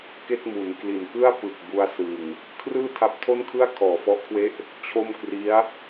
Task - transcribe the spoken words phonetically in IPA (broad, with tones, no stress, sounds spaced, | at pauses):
k e˥˩ k̚ m u˩˦ n k l i˨˩ n k ɯ˥˩ a̯ p ɯ˨˩ k̚ b u˧ a̯ s ɯ˨˩ ŋ | kʰ r ɯː˥˩ tʰ a˦˥ p̚ tʰ o˥˩ n kʰ ɯ˥˩ a̯ kʰ ɔː˨˩ f ɔ˦˥ ʔ kʰ w e˦˥ ʔ | t͡ɕʰ o˥˩ m k r i˦˥ a̯